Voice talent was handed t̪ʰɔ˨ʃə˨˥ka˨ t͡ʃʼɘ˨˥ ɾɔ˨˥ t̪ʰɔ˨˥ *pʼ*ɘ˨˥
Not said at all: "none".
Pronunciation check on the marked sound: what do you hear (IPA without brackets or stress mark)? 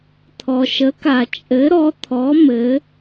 m